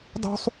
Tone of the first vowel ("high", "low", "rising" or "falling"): high